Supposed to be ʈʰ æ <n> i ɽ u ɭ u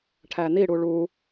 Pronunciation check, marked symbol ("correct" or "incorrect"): correct